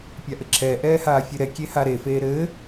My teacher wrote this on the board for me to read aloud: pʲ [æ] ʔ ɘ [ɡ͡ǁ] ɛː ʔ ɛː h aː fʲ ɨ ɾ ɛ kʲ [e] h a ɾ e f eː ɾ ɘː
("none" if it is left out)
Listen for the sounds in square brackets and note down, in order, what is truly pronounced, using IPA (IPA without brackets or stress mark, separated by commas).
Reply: a, ǁʰ, e